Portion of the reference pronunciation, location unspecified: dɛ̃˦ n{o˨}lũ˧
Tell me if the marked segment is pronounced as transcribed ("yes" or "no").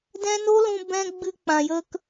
no